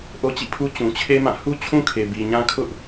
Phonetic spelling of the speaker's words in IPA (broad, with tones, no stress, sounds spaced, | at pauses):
ʔ o˦ t͡ɕ ḭ˦˨ pʰ u˦ t͡ɕ ũ˨ t͡ɕʰ e˦ m ã˦˨ h u˦ t͡ɕʰ ũ˦ kʰ e˨ b i˨ ɲ ã˦ kʰ ʊ˦ ʔ